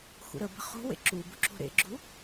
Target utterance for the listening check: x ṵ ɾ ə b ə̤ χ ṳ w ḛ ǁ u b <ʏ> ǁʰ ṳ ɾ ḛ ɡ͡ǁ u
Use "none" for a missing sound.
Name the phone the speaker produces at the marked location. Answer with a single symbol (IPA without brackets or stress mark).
u